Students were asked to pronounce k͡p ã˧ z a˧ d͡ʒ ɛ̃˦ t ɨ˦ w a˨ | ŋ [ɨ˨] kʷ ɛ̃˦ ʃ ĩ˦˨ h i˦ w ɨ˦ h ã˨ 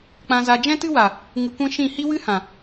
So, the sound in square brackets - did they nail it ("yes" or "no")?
no